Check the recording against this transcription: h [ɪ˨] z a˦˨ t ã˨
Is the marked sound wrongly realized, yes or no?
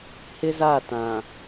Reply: yes